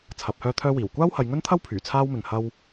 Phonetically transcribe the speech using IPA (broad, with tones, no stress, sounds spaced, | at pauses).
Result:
t͡sʰ ɐ˨˥ p̚ h œː˥ t̪ʰ œː˥ w iː˨˩ w kʷ aː˥ w h ɐ˨˧ j ŋ ɵ˥ n t̪ʰ ɐ˥ w pʰ yː˨˩ t͡sʰ aː˥ w m ɪ˨ ŋ h ɐ˥ w